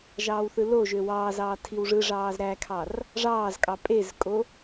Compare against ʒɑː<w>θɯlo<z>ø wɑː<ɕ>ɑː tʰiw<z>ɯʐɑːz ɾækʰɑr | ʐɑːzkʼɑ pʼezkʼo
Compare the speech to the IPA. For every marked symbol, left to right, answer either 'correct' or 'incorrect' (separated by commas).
correct, incorrect, incorrect, incorrect